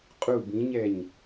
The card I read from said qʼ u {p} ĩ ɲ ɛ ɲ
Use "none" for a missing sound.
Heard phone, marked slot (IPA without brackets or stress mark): b